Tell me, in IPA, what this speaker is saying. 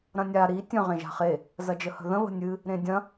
ɾ ɐ̃ nʲ a ɾ i tʲ ə̃ ʁ ẽ ʒ a̤ χ e | z ɐ d͡ʒ ə h ə̤ ð ə̃ β ə̤ nʲ ɨ | ɾ ẽ dʲ ɐ̃

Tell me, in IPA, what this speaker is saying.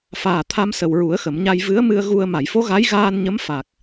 f aː˨˩ t̪ʰ a˧ m s ə˨˩ w ɹ u˨˩˦ ə̯ x ə˨˩˨ m ɲ a˧ j v ɨ˧˥ ə̯ m ɨ˧ ə̯ ɣ u˧ ə̯ m a˨˩˨ j f o˧˥ ɣ a˧˥ j ɣ aː˧ n ɲ ə˧˥ m f a˨˩ k̚

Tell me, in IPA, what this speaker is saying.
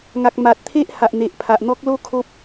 ŋ a˨ k̚ m a˨ t̚ t̪ʰ e˦ ʔ h a˨ ʔ n̪ e˨ ʔ pʰ a˨ ʔ n̪ ɔ˦ k̚ l o˦ kʰ o˦ p̚

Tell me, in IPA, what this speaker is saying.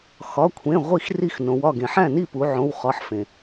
x ɒ˩˧˩ kʷʰ ẽ˩˧˩ ʁʷ i˥˩ x r i˥˩ x n õ˩˧ w ɒ˥˩ ɡ ẽ˩ ħ æ̃˥˩ n i˥˩ p u˩˧ ʕ õ˩˧˩ w χ ɒ˩˧˩ ħ f ẽ˩

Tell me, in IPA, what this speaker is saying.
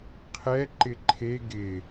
qʰ ɛ ǃ ɪ ǃʰ e ɡ ɪ

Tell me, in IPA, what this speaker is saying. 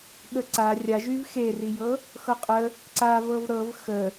ɠ ə ǀ a rʲ a ʒ y v x e r i j ɤ | x ɤ qʼ ə | ǀ a v ɤ v ɾ ɤ v x ə

